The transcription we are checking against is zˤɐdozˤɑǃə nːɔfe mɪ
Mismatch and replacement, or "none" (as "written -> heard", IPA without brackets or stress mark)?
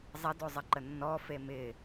ɑ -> ɐ